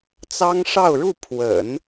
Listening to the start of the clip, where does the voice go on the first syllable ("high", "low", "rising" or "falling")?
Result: high